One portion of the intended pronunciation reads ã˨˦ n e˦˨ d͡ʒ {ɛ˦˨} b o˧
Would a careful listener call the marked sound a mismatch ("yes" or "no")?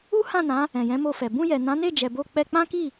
yes